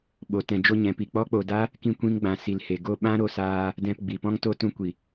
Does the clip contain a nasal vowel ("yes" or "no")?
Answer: yes